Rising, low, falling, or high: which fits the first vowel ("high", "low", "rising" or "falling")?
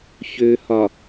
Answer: low